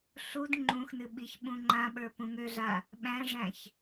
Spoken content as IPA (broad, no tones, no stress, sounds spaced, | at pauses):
ɬ u d ŋ͡ǃ ũ x n ɨ ɓ i ç ɓ ũ ŋ͡ǃ ã ɓ ə˞ p ũ ŋ ø ɮ a | ɓ æ̃ ʐ æ̃ ç